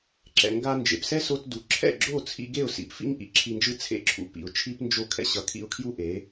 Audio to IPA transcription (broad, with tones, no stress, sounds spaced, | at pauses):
ǁ ɛ̰˩ ŋ ɡ a˧ n d͡ʒ ḛ˩ p s ɛ˥ s o˧ t d u˩ ǁʰ ɛ̰˥˩ ɡ͡ǁ o˥˩ t͡sʰ ḭ˧ ɡ e˥˩ ʊ̯ s ḭ˩ p f ḭ˥ ŋ ʔ ḭ˩ ǁʰ i˧ n d͡ʒ ɯ˥ t͡sʰ ḛ˥˩ ǁʰ ṵ˩˥ p ḭ˩ ʊ̯ t͡ʃʰ i˥ p n d͡ʒ o˥˩ kʰ ɛ̰˥ ɕ ʌ˩˥ kʰ ḭ˧ ʊ̯ kʰ j u˥ ʔ e˩˥